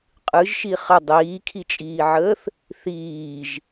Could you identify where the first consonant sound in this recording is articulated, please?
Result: uvular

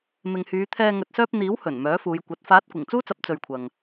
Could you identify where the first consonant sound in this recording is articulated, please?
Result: labial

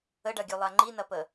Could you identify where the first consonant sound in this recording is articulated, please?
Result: retroflex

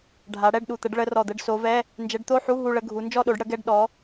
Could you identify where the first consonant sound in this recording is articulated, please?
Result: retroflex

